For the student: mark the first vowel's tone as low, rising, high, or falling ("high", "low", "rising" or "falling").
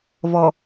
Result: low